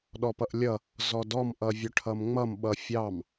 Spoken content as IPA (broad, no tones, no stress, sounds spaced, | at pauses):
ɗ ɔ p ʌ ʔ lʲ ʌ | z ɔ d ɔ m ʔ ʌ vʲ œ ʈʰ ʌ m ŋ͡m ʌ m ɓ ʌ fʲ ɑ m